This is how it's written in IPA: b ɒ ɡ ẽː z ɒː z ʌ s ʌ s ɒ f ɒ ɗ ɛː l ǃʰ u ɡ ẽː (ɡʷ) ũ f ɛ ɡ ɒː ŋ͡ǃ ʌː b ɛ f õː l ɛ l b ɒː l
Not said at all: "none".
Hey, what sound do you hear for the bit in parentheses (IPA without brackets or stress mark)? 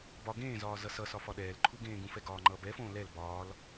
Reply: ɡ